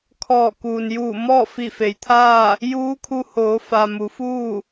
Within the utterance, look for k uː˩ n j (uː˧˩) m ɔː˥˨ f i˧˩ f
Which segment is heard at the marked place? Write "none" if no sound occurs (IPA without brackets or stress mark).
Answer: uː˧˩